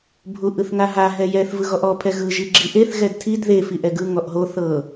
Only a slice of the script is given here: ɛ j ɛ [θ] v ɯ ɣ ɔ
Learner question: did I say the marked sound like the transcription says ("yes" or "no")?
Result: yes